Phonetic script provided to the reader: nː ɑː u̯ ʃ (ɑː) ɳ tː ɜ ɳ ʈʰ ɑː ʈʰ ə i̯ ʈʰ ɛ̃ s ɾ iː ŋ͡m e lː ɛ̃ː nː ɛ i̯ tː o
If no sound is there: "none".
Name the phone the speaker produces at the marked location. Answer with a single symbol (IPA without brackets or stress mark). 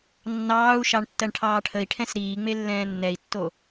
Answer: ɑ